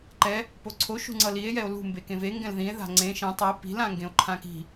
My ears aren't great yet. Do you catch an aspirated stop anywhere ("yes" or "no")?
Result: yes